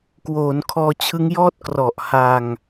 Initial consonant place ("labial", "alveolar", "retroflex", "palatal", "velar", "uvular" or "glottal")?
velar